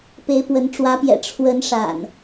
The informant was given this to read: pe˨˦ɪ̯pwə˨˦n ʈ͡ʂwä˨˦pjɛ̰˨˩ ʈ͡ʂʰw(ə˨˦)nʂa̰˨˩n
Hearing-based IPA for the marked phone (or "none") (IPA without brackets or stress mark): ə˨˦